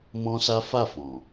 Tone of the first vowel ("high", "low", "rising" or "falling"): high